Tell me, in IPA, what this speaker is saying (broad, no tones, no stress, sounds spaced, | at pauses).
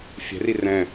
fʲ ɛ̤ r i r ɛ̃